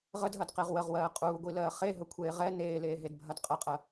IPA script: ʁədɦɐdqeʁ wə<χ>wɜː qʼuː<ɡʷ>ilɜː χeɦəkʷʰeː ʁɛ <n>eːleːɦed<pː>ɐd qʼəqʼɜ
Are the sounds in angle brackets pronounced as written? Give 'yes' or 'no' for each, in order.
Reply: no, yes, yes, no

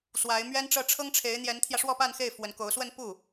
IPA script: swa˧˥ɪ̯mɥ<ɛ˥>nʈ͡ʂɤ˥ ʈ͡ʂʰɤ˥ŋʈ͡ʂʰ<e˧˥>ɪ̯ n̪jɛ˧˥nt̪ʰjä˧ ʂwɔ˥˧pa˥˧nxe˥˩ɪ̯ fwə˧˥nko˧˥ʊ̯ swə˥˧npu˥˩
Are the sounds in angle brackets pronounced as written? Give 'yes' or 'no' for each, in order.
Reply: yes, yes

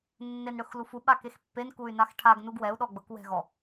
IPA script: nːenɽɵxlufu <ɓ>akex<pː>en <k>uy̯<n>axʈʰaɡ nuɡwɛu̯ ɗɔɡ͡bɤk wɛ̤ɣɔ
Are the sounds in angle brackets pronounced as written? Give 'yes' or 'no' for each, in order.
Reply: yes, yes, yes, yes

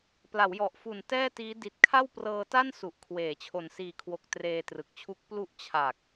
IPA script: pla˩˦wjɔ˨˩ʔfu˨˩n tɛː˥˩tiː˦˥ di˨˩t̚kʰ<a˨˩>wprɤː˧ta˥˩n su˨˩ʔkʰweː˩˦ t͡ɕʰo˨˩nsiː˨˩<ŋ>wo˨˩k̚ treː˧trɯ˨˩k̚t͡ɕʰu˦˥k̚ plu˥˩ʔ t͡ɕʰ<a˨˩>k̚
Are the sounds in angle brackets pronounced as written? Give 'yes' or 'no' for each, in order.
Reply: no, no, yes

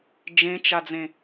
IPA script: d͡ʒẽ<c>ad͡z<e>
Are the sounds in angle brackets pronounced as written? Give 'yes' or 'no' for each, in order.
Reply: no, no

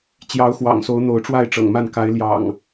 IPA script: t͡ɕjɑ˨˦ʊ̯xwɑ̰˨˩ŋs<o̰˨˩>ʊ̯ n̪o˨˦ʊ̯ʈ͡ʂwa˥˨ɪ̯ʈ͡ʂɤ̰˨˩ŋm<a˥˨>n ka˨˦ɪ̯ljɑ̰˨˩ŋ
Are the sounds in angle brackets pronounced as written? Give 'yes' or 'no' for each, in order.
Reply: no, yes

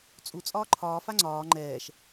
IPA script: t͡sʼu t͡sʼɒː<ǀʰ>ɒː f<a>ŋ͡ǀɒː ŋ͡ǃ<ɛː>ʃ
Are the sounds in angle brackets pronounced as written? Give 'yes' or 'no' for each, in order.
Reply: no, yes, yes

